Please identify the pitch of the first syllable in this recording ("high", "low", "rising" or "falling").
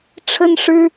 high